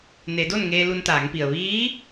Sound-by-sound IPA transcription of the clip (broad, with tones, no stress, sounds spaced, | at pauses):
n e˩˧ d o˥˨ n ŋ eː˧ l u˧ n t̪ aː˩˧ ŋ p i˩ ə̯ ʋ iː˧˥